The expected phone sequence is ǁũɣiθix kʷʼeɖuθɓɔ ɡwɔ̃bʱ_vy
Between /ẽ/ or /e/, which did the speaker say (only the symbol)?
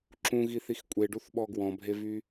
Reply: e